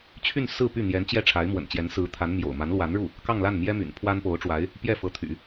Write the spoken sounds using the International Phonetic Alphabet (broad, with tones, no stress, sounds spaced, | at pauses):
t͡ɕʰ y˥˧ n s ɹ̩˥˧ p y˥˩ n̪ j ɛ˧˥ n t͡ɕ j ɛ˥˩ ʈ͡ʂʰ a˧˥ ɪ̯ m w ə̰˨˩ n t͡ɕ j ɛ˧˥ n s ɹ̩˧˥ t̪ʰ a˧˥ n m j o̰˨˩ ʊ̯ m a˧˥ n l w a˧˥ n ɻ u˥˩ | k ɑ˥˧ ŋ l a˥˩ n m j ɛ˥ m y̰˨˩ n pʰ w a˥ n p o˧˥ ʊ̯ ʈ͡ʂ w a˧˥ ɪ̯ | p j ɛ˥˩ f ɤ˧˥ t̪ʰ y̰˨˩˦